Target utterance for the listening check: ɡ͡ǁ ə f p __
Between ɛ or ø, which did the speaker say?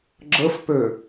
ø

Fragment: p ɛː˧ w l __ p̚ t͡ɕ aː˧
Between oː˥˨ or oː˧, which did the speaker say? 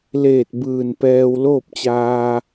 oː˥˨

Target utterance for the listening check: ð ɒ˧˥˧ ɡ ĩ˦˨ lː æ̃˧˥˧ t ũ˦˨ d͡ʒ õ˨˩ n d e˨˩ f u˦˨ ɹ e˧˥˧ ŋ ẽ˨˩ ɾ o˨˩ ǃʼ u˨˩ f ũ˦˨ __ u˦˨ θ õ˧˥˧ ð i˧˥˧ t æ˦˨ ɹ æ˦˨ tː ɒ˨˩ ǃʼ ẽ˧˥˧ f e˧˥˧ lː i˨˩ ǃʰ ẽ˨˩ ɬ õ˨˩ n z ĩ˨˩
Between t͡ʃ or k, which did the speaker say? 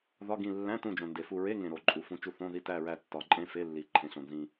t͡ʃ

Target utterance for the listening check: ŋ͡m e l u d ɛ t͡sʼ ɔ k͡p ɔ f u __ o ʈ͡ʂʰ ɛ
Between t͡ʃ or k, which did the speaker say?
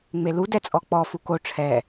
k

